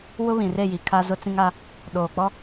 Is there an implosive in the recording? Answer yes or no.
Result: yes